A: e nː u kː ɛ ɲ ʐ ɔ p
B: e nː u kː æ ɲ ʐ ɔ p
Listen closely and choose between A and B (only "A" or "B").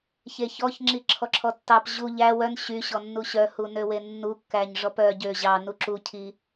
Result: B